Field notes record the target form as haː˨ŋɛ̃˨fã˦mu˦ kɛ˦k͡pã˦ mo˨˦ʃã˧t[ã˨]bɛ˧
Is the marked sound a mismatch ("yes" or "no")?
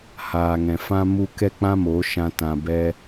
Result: no